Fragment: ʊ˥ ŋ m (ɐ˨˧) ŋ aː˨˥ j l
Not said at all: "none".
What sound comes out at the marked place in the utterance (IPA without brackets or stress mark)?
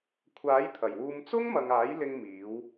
ɐ˨